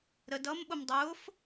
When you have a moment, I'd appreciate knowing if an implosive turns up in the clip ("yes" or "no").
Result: yes